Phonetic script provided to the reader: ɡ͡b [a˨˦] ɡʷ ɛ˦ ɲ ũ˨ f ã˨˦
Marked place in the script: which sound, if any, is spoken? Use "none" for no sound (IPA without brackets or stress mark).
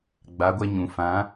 a˨˦